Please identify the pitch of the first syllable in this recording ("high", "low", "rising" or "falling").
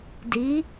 rising